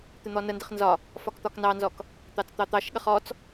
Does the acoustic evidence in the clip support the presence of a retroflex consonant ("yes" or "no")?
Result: no